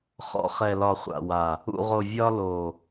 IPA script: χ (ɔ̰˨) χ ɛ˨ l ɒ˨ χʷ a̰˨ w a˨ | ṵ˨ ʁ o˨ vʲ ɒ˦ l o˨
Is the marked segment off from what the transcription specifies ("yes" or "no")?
no